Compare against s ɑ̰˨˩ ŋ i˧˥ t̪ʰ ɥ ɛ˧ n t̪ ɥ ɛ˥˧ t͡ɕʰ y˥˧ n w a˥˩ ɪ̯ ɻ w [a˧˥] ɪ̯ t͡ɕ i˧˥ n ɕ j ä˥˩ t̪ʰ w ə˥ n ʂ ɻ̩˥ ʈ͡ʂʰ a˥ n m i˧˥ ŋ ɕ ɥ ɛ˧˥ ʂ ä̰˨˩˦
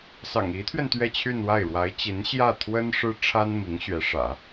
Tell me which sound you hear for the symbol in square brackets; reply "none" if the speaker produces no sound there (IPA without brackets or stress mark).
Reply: a˧˥